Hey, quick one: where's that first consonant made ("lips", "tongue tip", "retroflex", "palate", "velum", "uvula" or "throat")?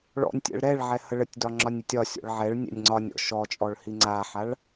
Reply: retroflex